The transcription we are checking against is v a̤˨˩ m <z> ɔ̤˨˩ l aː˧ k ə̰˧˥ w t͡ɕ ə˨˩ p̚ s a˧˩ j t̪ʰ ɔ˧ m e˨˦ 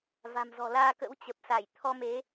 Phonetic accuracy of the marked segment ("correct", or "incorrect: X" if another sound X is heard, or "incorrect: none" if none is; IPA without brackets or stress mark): correct